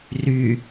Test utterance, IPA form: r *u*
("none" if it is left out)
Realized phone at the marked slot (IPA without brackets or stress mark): y